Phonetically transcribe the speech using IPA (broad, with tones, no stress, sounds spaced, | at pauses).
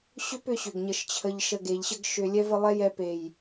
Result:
ɕ ʏ˦ p ʏ˧ ɕ ʏ˨ ɡ ɲ ə˧ ʃ t͡ɕʰ ə˧ ʎ ʃ ə˧ ɡ e˨ ʎ ɕ ə˦ ɡ ʃ ʏ˧ lʲ ɛ˦ v ə˧ lˠ ɛ˦ j ɛ˧ p e˨ j